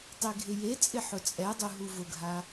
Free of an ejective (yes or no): no